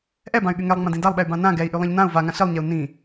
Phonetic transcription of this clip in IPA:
ʔ ɛ b ã y̯ ɠ y ŋ ɛ lˠ ŋ͡m ã d ĩ d a lˠ ɓ ɛ y̯ b ã n ã ɡ ɛ i̯ ʔ y lˠ ɛ̃ ʎ n ã u̯ v a ŋ ã ɬ i lˠ ɲ ɛ u̯ n ĩ

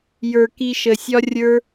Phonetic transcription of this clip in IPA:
j ə˞˨ k i˧ ʃ ə˨ sʲ ɒ˦ rʲ ə˞˦

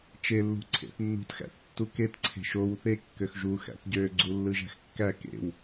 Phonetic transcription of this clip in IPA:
t͡ʃ e lː ṳ ǀʰ ḛ θ nː ṳ t x æ̰ θ tː u k e t ǀʰ e̤ ʃ o w θ e kː ø x ʒ u x æ̰ θ ɟ ø ɡ͡ǀ u lː ɯ ʒ æ̤ x kː æ k ḛ w

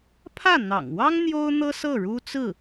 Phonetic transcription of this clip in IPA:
pʰ ä˥˩ n̪ ɑ̰˨˩ ŋ w ɑ˥ ŋ n̪ j o˥ ʊ̯ n̪ ɤ˥ s ɤ˥˩ ɻ u˥ t͡s ɹ̩˥˩

